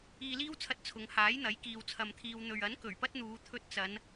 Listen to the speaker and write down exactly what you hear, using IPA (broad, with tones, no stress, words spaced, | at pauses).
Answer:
iː˧liː˥wt͡sʰɐ˧t̚ t͡sʰʊ˨˧ŋ haː˨˥jn̪ɐ˨˥j kiː˧wt͡sʰɐ˧mt̪ʰiː˧w n̪ɵ˨ɥɐ˨˥n kɵ˨˩ɥpɐ˥t̚n̪uː˨˧ t̪ʰɵ˧t̚t͡sɐ˨˧n